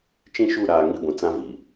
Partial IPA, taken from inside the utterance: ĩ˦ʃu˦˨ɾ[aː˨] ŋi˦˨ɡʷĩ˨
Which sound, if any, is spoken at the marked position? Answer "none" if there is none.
aː˨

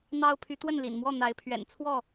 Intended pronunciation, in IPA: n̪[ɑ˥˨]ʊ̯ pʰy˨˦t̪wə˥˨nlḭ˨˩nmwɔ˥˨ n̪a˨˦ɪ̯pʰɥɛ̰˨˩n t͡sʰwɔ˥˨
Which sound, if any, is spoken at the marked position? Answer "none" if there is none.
ɑ˦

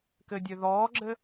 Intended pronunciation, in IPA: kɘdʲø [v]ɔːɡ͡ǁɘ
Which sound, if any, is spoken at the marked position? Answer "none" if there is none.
ð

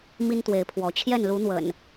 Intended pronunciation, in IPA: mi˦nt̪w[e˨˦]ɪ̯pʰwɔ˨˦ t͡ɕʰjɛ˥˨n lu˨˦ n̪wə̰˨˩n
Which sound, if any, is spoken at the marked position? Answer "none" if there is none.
e˨˦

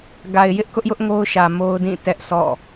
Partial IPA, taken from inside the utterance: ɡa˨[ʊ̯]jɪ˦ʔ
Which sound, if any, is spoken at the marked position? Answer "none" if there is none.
ɪ̯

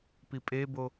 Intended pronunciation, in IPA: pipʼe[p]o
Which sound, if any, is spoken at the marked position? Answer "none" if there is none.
b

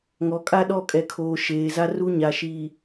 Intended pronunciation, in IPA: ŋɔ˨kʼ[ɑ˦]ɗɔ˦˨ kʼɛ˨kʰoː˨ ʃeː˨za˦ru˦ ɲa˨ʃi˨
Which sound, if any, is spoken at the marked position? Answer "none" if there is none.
a˦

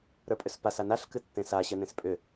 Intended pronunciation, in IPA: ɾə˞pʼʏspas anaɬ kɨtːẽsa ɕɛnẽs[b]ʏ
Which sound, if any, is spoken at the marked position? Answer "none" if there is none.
pʼ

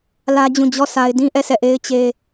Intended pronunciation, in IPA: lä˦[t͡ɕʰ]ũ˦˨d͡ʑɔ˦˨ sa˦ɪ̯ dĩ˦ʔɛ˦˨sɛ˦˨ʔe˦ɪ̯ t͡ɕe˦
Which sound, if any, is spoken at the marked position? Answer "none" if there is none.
d͡ʑ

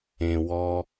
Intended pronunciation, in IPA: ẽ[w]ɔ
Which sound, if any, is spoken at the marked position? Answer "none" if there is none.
w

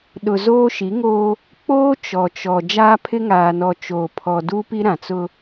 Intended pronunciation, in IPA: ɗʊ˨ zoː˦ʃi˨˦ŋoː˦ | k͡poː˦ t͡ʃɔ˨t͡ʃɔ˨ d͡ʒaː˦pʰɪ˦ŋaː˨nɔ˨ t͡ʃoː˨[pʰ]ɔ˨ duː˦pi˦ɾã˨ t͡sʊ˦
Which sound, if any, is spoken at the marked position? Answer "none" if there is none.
pʰ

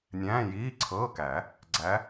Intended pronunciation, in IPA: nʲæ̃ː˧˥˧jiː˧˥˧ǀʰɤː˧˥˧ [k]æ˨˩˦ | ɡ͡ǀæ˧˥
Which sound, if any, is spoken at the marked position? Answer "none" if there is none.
k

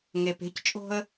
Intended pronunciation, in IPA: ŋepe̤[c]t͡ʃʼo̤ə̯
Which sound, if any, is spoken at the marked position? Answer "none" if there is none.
c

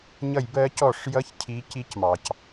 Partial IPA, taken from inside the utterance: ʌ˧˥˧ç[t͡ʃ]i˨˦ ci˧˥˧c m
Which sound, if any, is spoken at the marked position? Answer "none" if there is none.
cʰ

